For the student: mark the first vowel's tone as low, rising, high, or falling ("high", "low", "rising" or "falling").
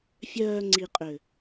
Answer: low